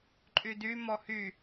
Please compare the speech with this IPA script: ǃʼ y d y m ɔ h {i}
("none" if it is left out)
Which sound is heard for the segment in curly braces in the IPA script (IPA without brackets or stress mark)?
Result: y